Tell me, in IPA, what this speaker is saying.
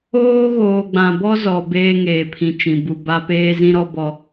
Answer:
oː˦ ɣoː˨ɡ͡bã˨bɔ˦zɔ˨ beː˦ŋeː˨pʰĩ˨t͡ʃĩ˨ bu˨ba˦peː˦ zĩ˦ɾɔ˦ bɔ˦

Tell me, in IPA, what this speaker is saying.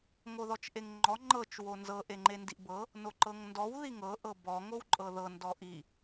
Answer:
ŋoðɔt͡ʃʔeŋŋ͡ǃɔ ŋ͡ǃɤt͡ʃ wonzɤ ʔeŋ͡ǃendiʔbɤ | noǃɤŋndɔw ðiŋɤ ʔɤbɔ ŋowǃʼɤðɤ ndɔʔi

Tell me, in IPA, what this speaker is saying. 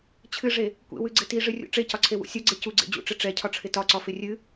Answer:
t͡ɕʰɨʐe | kʷḛwɨɡ͡ǀɪ tiʐɨrʲṵ ʈ͡ʂecɒǀʰewṵ sʲʌɡ͡ǀe cuɡ͡ǀḛ d͡ʑṵʈ͡ʂɪ ʈ͡ʂɛcʰɒʈ͡ʂʰɪ tɒǀɒfɪ rʲɨ

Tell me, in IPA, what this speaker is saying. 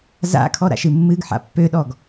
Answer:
za̰ kʰɔɾa̰ʃɨmːɨɡ ħa̰pːøɗɔɡ

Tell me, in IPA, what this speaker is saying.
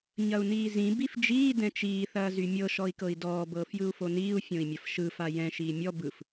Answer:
ɲɐu̯niːzĩ bifd͡ʒiː dɛ̃t͡ʃiː θɐːzymʲɤ ʃɔi̯kɤi̯dɔː bɤːfjɯu̯foniːu̯ fʲõi̯mʲɐfʃɯ fajɛ̃ ʃiːmʲɔ bɯf

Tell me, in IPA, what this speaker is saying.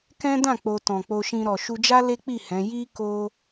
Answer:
kɛ̃˦dã˦˨ k͡po˧ tɔ̃˨k͡po˧ʃĩ˧ ɾɔ˨ʃu˧d͡ʒa˦ le˦k͡pi˦˨ hɛ̃˨˦ ji˦ ko˦

